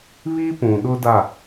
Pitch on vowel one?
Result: high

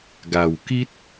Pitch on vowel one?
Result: low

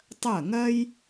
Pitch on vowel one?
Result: falling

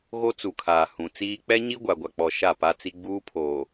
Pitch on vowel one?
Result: high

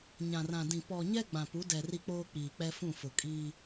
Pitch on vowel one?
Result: low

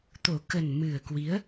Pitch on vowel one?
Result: low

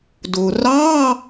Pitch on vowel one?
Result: low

